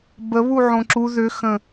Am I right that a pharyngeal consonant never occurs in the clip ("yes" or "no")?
no